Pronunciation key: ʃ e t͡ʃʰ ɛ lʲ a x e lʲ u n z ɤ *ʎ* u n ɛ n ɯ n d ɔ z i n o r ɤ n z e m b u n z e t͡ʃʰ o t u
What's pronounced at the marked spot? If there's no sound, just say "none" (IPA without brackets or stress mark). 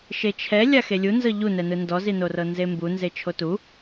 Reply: ʎ